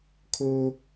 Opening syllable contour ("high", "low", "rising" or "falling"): high